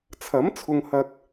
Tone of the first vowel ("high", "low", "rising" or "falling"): rising